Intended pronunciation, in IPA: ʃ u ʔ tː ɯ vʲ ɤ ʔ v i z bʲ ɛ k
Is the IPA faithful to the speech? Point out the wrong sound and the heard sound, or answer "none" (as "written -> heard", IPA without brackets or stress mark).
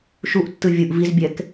ɤ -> ɯ